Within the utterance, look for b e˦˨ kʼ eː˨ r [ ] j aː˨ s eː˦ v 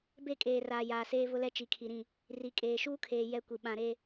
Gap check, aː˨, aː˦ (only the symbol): aː˨